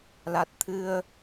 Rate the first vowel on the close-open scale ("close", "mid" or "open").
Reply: open